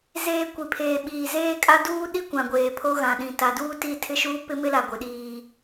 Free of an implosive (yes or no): no